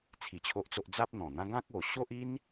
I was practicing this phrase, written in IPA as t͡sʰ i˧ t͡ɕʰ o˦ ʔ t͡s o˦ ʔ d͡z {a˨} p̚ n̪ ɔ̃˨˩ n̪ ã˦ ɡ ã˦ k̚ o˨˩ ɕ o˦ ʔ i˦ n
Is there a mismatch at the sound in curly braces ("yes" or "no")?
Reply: yes